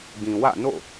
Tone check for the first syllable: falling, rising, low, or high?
low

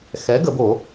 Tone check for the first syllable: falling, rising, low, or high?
rising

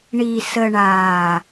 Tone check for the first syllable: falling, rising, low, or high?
low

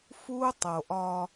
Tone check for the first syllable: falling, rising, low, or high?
high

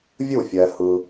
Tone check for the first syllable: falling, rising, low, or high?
falling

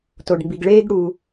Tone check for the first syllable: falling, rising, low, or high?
low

